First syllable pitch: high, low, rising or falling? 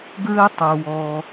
high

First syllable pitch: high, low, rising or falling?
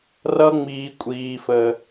high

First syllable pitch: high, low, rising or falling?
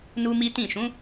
high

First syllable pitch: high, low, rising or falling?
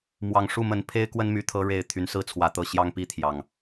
low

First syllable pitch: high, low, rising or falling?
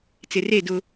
low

